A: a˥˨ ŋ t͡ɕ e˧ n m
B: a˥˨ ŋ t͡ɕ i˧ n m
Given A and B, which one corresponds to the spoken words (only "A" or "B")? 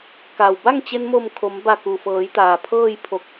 A